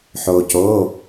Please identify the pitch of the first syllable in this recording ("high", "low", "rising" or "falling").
low